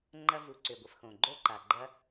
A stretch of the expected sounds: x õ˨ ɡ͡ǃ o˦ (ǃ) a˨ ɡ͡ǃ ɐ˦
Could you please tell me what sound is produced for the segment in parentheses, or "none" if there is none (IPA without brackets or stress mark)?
ǃ